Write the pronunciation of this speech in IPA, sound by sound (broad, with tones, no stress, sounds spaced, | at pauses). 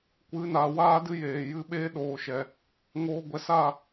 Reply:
kʷ ɨ˨˦ n a˨ w aː˦ d ɨ˦ j eː˨ j ɨ˧ ɓ eː˦ ɗ oː˨ ʃ ɛ˨ | ŋ oː˧ ɡʷ ɛ˧ s a˦˨